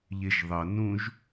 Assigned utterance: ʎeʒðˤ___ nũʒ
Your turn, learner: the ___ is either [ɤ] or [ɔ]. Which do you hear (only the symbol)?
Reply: ɤ